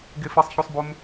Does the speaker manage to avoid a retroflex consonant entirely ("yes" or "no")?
yes